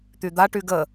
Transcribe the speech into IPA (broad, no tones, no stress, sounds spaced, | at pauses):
t̪ y d̪ a ʈ y ɡ ə